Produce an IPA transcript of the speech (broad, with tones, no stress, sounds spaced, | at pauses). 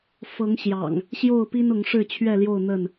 f ɤ˨˦ ŋ ɕ j ɑ̰˨˩ ŋ | ɕ j o˥˨ ʊ̯ p i˦ n ʊ˨˦ ŋ ʂ ɻ̩˥˨ t͡ɕʰ ɥ ɛ˥˨ l j o˥˨ ʊ̯ n̪ ə˥˨ n